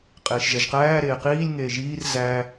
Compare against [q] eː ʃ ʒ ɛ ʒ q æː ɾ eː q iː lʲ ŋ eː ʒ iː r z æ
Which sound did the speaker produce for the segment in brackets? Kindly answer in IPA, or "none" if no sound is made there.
qʼ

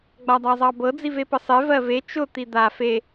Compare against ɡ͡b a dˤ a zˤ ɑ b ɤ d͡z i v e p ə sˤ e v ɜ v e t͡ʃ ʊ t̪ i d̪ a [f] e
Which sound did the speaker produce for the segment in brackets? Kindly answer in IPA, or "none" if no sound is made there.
f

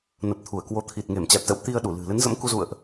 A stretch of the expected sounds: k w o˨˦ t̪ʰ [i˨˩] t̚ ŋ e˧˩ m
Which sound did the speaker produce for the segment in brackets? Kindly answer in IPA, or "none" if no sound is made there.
i˨˩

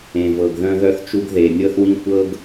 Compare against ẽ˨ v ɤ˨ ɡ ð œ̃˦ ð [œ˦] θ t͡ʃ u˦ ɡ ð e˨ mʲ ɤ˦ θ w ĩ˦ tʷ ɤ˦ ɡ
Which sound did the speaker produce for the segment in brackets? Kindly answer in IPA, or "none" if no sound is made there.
œ˦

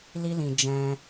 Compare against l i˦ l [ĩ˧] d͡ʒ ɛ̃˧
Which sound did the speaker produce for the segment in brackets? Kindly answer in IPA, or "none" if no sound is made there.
ĩ˧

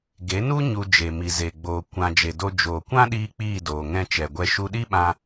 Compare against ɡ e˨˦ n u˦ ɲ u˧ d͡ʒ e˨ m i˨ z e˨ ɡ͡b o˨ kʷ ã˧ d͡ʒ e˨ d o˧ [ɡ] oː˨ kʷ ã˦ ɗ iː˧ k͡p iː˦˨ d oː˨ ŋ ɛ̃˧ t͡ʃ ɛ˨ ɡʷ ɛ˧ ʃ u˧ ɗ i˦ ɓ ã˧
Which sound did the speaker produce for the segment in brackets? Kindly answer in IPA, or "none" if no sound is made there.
d͡ʒ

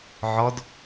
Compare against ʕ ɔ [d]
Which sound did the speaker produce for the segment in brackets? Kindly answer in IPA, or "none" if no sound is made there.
d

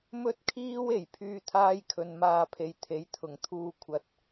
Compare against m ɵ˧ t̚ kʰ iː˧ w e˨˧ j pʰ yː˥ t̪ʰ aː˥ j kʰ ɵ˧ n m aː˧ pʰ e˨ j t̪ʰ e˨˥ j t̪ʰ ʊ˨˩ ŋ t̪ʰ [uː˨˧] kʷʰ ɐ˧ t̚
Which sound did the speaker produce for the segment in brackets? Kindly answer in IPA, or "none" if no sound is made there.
uː˧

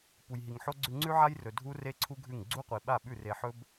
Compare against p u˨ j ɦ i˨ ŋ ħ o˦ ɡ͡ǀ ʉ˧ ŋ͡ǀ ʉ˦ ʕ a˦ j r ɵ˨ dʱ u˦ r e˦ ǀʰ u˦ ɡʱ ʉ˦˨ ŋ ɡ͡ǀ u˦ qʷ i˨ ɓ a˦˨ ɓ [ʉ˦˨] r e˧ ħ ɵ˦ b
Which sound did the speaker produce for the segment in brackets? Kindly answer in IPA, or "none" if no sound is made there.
ʉ˦˨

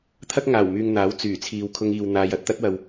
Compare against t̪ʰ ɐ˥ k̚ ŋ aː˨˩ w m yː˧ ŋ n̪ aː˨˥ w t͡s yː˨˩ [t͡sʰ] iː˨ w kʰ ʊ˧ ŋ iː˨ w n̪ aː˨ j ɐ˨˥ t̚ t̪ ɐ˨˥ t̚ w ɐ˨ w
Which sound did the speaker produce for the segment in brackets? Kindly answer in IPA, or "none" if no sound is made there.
t͡sʰ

